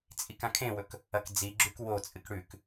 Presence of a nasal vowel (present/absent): present